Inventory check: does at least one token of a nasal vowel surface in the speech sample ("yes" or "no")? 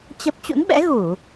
no